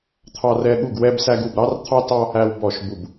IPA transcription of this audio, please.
t̪ʰɑ˥rɛ˥ ɠu˥˧ɡ wɛ˥bsæ˥ɡ u˥˧bɾɑ˥rt̪ʰɑ˥tɑ˥ | æ˥wbɔ˥˧ʃ bu˥˧b

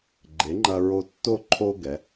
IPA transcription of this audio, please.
ɡ͡ǃe˩˥ŋ͡ǃɐ˧ɹo˧tːo˥˨ ǃʰo˧ ɡɛ˩˧

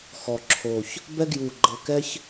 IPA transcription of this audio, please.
xɔ˨˩ǁʰo˨˩ç | bɛ˦ɡju˨˩ ɡ͡ǃɤ˨˩kɛ˦ç

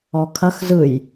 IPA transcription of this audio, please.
ɔkʰɐx zɯj

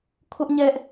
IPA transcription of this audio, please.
kʰʊ˦ʔ ɲɛ˦ʔ

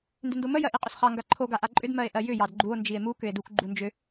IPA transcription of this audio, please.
ndʏndomə jɜʔiqʼʏsχɑ ŋɡaǃʰo ɡaʔaǃʼʏd mɜe̯ʔɜjʏ jɑdɡ͡ǃuo̯ nd͡ʒie̯mu kʏe̯duk ɡ͡ǃund͡ʒʏ

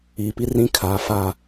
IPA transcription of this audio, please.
iː˨pi˦ rĩ˦kʰaː˨ fa˨

